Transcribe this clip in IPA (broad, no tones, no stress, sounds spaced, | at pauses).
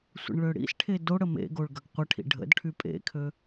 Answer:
sʷ ə̰ ɳ ɭ ø ɽ ḭ s ʈʰ e d o ɽ ə m ḛ ɡ o ɭ ɡ ɐ ɡ qʷ ə ʈʰ ḭ ɖʱ ə̰ d ʈʰ y pʼ ḛ kʰ ø